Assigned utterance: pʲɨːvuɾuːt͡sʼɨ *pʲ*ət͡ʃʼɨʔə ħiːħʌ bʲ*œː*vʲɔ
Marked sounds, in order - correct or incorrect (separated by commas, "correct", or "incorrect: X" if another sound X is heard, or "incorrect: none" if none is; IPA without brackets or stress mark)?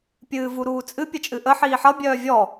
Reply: correct, correct